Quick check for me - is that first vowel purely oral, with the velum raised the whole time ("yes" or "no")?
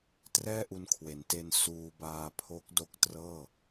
yes